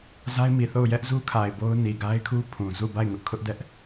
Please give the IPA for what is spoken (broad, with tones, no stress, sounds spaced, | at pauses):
z a˦ ɪ̯ m i˨ θ o˦˨ ʊ̯ j ɛ˦ ʔ z u˦ kʰ a˨ ɪ̯ b o˦ ʊ̯ n i˨ ɡ a˦ ɪ̯ kʰ u˦ pʰ ũ˨ z u˦˨ b a˦˨ ɪ̯ ŋ ʊ˦ ʔ kʰ ʊ˦ ʔ d ɛ˦ ʔ